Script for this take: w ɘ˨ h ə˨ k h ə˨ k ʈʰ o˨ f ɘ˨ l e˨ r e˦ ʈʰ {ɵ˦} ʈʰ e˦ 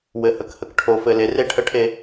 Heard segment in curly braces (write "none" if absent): ə˦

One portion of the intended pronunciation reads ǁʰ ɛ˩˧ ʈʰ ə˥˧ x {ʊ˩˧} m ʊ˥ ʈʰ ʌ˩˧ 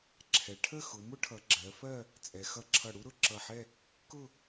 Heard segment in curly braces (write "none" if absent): ʊ˩˧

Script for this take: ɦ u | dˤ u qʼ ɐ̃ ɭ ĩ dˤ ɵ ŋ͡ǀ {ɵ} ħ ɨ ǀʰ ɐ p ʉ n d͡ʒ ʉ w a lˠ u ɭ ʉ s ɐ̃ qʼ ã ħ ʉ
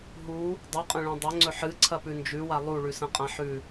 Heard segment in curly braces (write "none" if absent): ɵ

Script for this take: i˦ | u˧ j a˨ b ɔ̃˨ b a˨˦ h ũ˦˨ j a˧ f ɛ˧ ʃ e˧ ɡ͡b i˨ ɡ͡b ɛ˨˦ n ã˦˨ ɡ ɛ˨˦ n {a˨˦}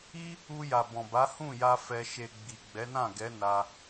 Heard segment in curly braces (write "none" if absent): a˧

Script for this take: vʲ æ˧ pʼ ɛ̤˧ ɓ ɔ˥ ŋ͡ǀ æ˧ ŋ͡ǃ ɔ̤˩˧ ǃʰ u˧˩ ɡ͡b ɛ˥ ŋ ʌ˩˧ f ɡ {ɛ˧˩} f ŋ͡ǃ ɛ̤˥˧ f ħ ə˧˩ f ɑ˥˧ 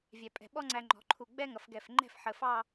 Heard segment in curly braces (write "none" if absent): ɛ˧˩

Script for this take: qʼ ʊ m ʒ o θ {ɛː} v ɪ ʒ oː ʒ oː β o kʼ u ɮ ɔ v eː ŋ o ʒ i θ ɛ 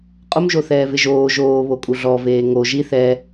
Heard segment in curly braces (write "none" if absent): ɛː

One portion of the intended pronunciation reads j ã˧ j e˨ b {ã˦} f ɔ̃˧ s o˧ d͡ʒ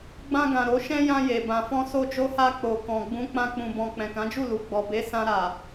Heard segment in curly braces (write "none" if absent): ã˨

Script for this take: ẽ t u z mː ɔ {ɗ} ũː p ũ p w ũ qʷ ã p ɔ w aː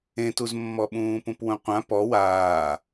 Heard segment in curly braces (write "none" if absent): ɓ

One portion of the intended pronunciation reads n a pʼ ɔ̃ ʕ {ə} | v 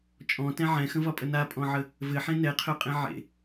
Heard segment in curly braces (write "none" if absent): ə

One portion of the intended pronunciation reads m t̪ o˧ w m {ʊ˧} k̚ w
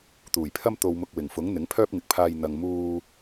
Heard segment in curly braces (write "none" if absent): ʊ˧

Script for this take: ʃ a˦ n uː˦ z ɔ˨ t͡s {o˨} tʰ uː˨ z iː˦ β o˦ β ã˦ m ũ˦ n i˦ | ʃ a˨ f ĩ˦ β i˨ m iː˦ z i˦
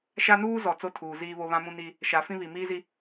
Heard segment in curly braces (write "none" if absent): o˦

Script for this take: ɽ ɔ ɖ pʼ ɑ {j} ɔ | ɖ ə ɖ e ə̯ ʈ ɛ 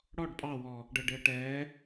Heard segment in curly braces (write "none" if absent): w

